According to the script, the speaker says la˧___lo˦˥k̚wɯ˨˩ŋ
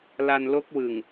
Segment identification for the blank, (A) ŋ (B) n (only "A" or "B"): B